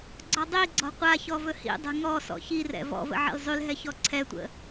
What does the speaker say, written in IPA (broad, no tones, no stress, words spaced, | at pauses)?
ɡ͡ǀɔdˤiɡ͡ǀɔ̤ qʷaçɔ vɵhḭdˤɛ̤ ŋɔ sɔ̰çirɛ̰ vɔ̰və̰ ʕḭlzˤylɦɛ çɔǀʰɛtʷə̰